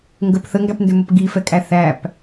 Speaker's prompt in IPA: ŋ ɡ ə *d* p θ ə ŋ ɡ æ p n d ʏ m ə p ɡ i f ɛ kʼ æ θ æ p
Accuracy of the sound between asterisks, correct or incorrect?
incorrect